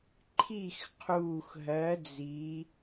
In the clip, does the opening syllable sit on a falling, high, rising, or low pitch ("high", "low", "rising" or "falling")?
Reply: falling